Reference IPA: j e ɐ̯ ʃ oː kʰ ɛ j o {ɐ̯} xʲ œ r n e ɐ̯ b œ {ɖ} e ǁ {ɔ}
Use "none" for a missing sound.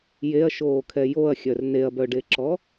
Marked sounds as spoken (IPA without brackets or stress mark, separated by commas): ɐ̯, ɖ, ɔ